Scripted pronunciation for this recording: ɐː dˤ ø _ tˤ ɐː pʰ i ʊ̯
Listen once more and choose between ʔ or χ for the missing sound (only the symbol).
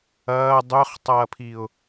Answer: χ